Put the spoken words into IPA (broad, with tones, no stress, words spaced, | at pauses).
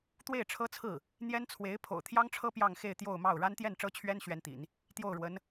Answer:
t̪we˥˩ɪ̯ʈ͡ʂʰɤ˥t͡sʰɹ̩˥˩ | n̪jɛ˥nt͡sʰwe˧˥ɪ̯ pʰo̰˨˩ʊ̯t̪ʰjɑ˥ŋʈ͡ʂʰɤ˥ pjɑ˥˧ŋxe˥˧ɪ̯ t̪jo˥˧ʊ̯mɑ˥˩ʊ̯ ɻa˥nt̪jɛ˥˩nʈ͡ʂɤ˥t͡ɕʰɥɛ˥n ɕɥɛ˥nt̪ḭ˨˩˦n | t̪jo˥˩ʊ̯ɻwə˧˥n